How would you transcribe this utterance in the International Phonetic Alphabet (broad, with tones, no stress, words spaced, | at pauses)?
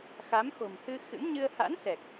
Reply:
xa˨˦mxo̤˨˩mhɨ˧ xɨ̰˧˥mɲɨ˧ə̯ ha̰˧˥nsɛ˨˩k̚